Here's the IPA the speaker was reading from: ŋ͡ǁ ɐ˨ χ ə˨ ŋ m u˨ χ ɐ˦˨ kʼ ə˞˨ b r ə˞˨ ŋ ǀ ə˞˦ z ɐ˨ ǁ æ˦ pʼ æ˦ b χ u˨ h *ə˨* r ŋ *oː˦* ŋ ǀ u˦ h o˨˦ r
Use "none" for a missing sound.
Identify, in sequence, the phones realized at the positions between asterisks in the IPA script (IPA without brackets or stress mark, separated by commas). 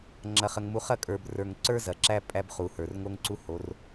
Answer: ə˞˨, o˦